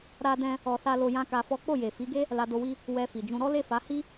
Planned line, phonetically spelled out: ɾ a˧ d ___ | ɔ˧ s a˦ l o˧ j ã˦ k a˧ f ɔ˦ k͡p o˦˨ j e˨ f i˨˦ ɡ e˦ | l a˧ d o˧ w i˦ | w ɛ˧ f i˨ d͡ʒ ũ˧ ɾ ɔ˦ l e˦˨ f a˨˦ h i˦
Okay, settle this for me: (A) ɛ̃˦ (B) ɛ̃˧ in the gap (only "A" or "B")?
B